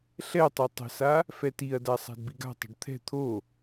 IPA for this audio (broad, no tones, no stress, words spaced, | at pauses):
ɬɛtˤø tˤə̤sa | fɛtiɐ̯da sˤa̤dbiɡa̤tˤə̤ɖ t̪ʰɛ̤ t̪ʰo